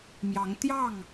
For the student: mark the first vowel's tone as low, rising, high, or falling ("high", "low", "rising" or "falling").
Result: rising